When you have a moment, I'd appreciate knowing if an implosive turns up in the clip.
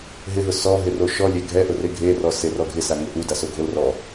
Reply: no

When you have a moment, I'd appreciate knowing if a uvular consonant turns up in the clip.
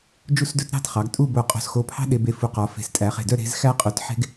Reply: yes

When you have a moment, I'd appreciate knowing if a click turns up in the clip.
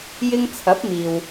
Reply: no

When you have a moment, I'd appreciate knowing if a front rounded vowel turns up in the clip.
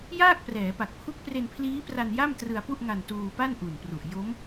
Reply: no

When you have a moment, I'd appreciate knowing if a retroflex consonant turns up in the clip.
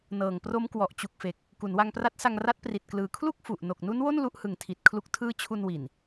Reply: no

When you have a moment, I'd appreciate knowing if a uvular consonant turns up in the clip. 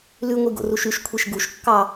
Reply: no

